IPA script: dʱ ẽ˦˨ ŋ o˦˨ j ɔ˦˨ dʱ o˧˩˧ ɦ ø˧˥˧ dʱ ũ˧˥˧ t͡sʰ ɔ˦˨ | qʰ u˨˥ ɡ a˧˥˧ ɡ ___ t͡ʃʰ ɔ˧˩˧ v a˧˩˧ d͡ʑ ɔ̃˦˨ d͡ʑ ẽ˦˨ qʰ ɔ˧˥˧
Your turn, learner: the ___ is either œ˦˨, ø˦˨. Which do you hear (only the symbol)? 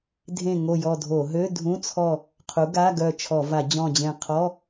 œ˦˨